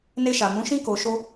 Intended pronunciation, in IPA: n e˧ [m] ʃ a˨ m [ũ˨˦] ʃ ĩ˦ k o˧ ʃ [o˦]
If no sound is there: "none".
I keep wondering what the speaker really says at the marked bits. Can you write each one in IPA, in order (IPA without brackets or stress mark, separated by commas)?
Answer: none, ũ˨˦, o˦